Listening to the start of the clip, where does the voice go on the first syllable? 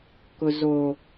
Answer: low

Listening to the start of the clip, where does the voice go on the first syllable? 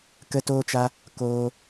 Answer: high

